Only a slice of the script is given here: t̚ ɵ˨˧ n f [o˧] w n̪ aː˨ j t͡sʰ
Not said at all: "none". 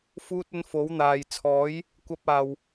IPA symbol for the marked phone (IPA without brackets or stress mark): o˨˥